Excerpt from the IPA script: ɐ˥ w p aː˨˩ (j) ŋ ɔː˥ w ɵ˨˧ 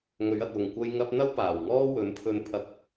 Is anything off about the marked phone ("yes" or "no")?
yes